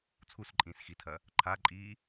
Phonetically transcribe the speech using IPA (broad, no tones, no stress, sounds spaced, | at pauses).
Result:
t͡sʰ u s ǃʼ ĩː s x i tʰ ɐ | ǃʰ a ǃʼ iː